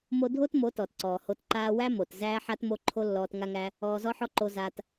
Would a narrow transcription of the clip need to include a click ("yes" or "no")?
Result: yes